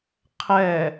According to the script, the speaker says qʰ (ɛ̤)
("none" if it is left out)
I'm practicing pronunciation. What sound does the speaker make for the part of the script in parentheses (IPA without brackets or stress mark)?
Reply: ɛ